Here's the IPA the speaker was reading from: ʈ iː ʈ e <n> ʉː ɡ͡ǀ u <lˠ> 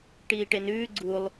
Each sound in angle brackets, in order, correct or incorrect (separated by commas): correct, correct